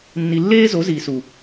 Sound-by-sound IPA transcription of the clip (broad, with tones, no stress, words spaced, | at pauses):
nːi˨lːeː˦zo˨˦ ziː˨su˨